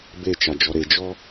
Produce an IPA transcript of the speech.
b e t͡ʃ a d͡ʒ ɔ ɾ e d͡ʒ ɔ

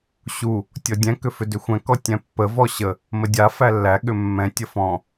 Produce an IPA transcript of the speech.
ɕ u | tʲ ɔ dʲ ɛ̃ k ʏ f ʏ d ʏ xʷ ɛ̃ k ɔ tʲ ɛ̃ pː ə v ɔ ɕ ə | m ə dʲ a f æ lː æ ɠ ʏ mː ɛ̃ tʲ ə f ɔ̃

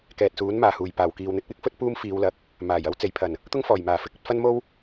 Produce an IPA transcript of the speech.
k ɛː˨ t̚ s uː˨˥ n m aː˨˩ h uː˨˩ j p aː˨˩ w k iː˨ w n̪ ɪ˨˥ k̚ w ɪ˨˥ k̚ f ɵ˥ t̚ p uː˥ m f iː˨˧ w l ɐ˨˥ k̚ | m aː˨˩ j ɐ˥ w t͡s e˨˩ j pʰ ɐ˨˩ n | t̪ ʊ˥ ŋ f ɔː˨˩ j m aː˨˩ f ɪ˥ k̚ ɵ˧ t̚ f ɐ˥ n m o˥ w

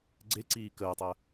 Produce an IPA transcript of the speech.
ɡ͡ǀ e ǀ iː k əː tˤ əː

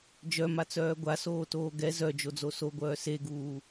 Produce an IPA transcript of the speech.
d͡ʒ œ m a t͡s œː ɡʷ a s oː t oː ɡ ɛ z œ d͡ʒ o d͡z o s o ɡʷ œː s e ɡ uː

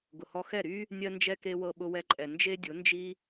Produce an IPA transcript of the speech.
ɡ ʊ˨ h ɔ˧ x ɛ˦˨ ɾ y˦ | nʲ ɜ˦ n d͡ʒ ɛ˧ k e˧ w ɤ˧ ɓ ʊ˧ w ɛ˧ ǃʼ ɛ˨ n d͡ʒ e˦ dʲ ʊ˨˦ n d͡ʒ i˦

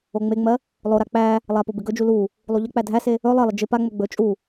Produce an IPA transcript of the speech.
o ŋ͡m e ŋ͡m ɜ | lˠ o ɾ a k͡p æ | lˠ a p o b ɪ ɡ ɵ d͡ʒ u l u | lˠ u ʎ ə k͡p æ dʱ æ s e | ɵ lˠ ɜ lˠ ɪ d͡ʒ ɪ p a ŋ͡m ɵ ɡ͡b ɵ t͡ʃʼ u

